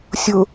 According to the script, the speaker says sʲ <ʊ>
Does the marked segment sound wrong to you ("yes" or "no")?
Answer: no